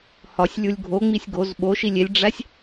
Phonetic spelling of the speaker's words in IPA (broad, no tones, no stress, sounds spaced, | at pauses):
h ɒ sʲ lʲ u lʲ ɡʱ o ŋ͡m i sʲ ɡ o z ɓ o ʃ i lʲ e lʲ ɖ͡ʐ æ sʲ